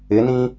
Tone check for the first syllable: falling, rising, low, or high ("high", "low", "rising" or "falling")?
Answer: rising